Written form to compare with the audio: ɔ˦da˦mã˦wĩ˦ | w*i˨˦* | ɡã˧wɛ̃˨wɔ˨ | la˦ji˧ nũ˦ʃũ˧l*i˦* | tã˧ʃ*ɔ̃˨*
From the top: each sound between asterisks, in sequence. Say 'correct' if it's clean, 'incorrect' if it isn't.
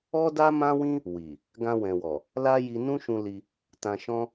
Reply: incorrect, incorrect, incorrect

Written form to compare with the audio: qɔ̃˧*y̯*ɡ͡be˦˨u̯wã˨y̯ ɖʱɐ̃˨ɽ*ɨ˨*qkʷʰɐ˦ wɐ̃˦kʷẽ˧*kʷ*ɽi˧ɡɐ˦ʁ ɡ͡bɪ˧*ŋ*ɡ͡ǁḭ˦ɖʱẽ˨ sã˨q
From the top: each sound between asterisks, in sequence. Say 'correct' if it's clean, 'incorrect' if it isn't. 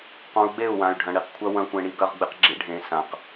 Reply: incorrect, incorrect, incorrect, incorrect

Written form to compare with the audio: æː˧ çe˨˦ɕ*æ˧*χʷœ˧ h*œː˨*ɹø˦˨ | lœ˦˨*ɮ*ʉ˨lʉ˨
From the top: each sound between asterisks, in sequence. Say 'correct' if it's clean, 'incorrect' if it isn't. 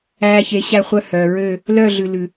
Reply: correct, correct, correct

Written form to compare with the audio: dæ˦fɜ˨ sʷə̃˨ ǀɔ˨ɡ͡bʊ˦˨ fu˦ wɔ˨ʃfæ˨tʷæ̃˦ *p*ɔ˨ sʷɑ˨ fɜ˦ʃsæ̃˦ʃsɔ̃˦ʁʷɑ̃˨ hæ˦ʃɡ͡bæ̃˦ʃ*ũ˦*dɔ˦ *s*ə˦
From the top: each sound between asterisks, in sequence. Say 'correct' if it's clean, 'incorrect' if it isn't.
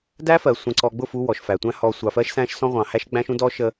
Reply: incorrect, correct, incorrect

